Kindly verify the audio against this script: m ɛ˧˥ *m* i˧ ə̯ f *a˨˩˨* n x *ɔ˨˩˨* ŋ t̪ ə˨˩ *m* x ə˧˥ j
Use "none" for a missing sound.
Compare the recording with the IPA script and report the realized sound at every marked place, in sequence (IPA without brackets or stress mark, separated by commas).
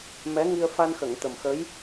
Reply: ŋ, a˧, ə˨˩˨, m